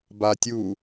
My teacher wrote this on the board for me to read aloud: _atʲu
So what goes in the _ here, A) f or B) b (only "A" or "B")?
B